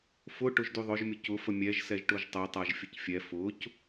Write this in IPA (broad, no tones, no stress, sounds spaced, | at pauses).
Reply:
f ʊ ʈ ʊ ʒ d y ðˤ ʊ ʒ mʲ ʊ c ʊ f ə mʲ ɛ ʒ s ɛ ʒ ʈ ʊ ʒ tˤ ə tˤ a ʒ fʲ ə c fʲ ɛ f ʊ c